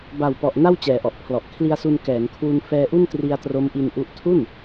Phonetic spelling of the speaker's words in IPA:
b a˨˩ w p ɔ˨˩ ʔ n a˥˩ w t͡ɕ ɛː˩˦ ʔ ɔ˨˩ ʔ pʰ l ɔ˨˩ ʔ kʰ l i˧ a̯ s u˧ n k ɛː˩˦ ŋ kʰ w u˧ n f ɛː˧ ʔ u˥˩ n t r i˧ a̯ t r o˦˥ m ʔ i˧ n ʔ u˦˥ ʔ tʰ u˥˩ n

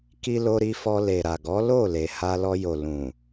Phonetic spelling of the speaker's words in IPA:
k i˧ l o˧ ɾ i˧ f ɔ˧ l e˨ ɾ a˨ ɡ ɔ˨˦ l o˦˨ l e˨ h a˧ l ɔ˧ j o˨ l ũ˨

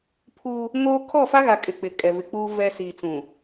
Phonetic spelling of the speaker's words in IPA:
pʰ u˦ | ŋ oː˦ kʰ ɔ˦˨ f a˦ ɣ a˨ kʼ ɪ˨ k͡p ɪ˨ kʼ ɛ˨ v ɪ˨ k͡p uː˦ v ɛ˨ s iː˨ t͡s ũ˨

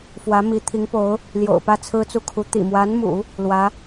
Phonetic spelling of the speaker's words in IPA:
f w ä˧˥ m i˧˥ t̪ʰ i˧˥ ŋ p o˧˥ ʊ̯ | l j o̰˨˩ ʊ̯ p ä˥˩ t͡sʰ ɹ̩˥ t͡s u˥˩ kʰ u˧˥ t̪ ḭ˨˩ m w a˧˥ n m ṵ˨˩˦ | l w ä˧˥

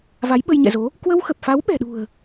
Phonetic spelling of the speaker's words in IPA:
v a˨˦ j ɓ ə˧ j ɲ ɛ̰˧˨ z o˨˦ | k w ə˧ w x ə˨˩ p̚ f a˨˦ w ɓ ɛ̤˨˩ ɗ ṳ˨˩ ə̯

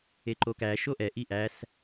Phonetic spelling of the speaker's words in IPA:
e ǃ o k æ ʃ o ʔ ɛ ʔ i ʔ æ s

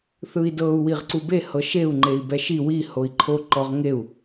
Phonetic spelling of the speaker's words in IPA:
θ ɯ i̯ d ɤ u̯ w i ʁ ǀ u b e h ɤ ʃ e u̯ ŋ͡ǃ e i̯ b ɛ ʃ i w i h o i̯ ǃʰ o ǃ ɔ ʁ ŋ e u̯

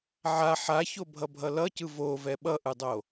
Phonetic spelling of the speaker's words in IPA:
ʕ a ħ a ç o bʱ ʌ bʱ ʌ l ʌ c ɯ v o v ɛ ɓ ʌ ʔ ɯ dˤ o

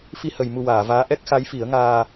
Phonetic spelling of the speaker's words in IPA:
f i˧ h ə˨˩˨ j m u˨˩ w aː˨˩˨ v aː˧˥ ʔ ɛ˦˥ k̚ x a˧˥ j f i˨˩˦ ə̯ ŋ aː˧

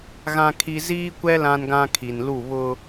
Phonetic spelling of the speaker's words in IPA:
ɣ ã˦ kʰ i˦ z iː˦ kʷ ɛ˦ l ã˦ n ɡ ã˦ kʰ i˨ n l u˦˨ β ʊ˦

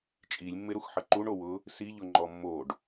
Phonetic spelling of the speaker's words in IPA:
t͡ʃʼ i lʲ mː ɪ ɾ u x ħ ə ǃ u ɳ o w ʊ | s i ʎ ʊ ŋ͡ǃ ɔ mː o ɖ

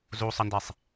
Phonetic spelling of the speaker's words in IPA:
z u sˤ ə n d e sˤ

